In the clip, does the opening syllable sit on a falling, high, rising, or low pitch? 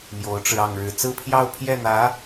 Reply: rising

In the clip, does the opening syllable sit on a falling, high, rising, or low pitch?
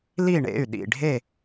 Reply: falling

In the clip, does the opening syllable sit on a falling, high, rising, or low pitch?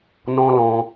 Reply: high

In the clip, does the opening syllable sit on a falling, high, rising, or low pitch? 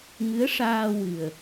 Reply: rising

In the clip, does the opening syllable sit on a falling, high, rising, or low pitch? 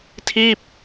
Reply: falling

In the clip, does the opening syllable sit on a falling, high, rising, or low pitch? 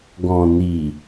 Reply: low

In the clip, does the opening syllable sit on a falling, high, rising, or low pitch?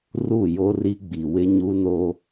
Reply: falling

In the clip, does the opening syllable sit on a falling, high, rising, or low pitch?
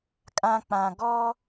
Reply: high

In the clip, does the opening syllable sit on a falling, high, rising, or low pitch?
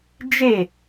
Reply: falling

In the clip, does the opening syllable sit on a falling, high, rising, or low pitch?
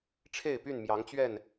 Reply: falling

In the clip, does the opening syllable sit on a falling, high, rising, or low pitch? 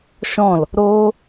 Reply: falling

